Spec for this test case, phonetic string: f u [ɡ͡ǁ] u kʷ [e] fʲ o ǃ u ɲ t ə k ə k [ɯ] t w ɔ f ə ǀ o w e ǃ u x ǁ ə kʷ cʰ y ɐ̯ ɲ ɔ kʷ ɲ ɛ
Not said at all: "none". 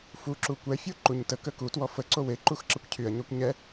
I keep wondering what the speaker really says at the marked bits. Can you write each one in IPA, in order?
ǁ, ɛ, u

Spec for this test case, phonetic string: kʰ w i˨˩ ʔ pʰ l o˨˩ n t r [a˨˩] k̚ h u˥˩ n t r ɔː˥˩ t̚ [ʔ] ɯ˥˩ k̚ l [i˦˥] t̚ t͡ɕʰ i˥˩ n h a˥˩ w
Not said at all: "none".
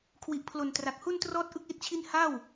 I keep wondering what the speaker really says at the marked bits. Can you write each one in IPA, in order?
a˨˩, ʔ, i˦˥

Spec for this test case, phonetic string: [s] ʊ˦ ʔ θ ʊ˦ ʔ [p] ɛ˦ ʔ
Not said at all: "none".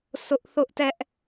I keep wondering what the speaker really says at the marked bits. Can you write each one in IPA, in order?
s, t

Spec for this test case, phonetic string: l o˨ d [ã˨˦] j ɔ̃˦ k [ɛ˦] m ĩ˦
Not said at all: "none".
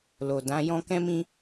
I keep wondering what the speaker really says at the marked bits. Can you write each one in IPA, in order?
ã˨˦, ɛ̃˦

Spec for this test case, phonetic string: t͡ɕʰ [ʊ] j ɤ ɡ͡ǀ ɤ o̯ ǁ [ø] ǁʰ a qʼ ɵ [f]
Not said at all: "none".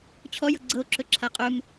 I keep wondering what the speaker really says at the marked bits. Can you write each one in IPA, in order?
ɔ, ɵ, m

